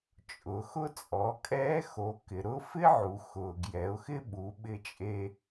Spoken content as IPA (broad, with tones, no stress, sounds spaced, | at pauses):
t͡ʃʼ ʊ˩˧ x ʊ˥ t͡sʼ ɔ˩˧ kʼ ɛː˧˥ x o˩˧ k ɪ˩ ɾ ʊ˧˥ f ɪ˥ ʕ u˩ x ʊː˩ ɡ j ɛ˩˧ ʊ̯ x ɪ˥ ɓ u˩˧ ɓ ɪ˧ t͡ʃʼ e˧